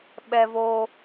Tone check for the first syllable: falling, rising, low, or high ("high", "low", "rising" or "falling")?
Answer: low